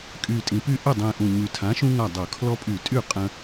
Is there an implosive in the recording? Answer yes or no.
no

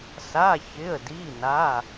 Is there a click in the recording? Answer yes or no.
no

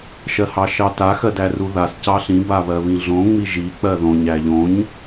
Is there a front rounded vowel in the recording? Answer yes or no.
no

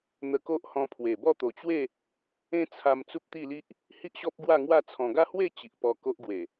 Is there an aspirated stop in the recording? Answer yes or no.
yes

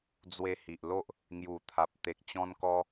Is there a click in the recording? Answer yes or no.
no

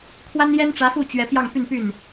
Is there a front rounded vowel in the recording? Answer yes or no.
yes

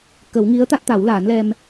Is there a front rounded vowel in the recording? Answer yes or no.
no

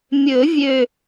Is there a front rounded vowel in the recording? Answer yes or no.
yes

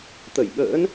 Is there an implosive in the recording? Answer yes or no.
yes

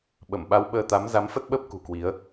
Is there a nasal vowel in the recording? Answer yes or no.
no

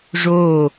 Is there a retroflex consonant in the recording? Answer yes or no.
yes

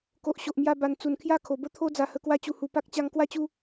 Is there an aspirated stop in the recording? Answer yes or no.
yes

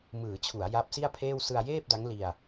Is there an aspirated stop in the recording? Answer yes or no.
yes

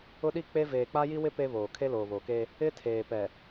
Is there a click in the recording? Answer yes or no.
no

